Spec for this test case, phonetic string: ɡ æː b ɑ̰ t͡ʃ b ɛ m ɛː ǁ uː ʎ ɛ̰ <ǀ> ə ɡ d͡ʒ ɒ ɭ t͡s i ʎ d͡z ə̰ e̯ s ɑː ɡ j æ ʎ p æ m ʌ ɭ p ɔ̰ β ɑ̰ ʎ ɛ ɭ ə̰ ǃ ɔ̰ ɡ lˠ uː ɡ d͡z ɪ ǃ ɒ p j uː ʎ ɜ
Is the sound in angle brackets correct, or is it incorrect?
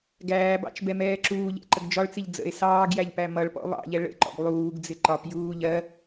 incorrect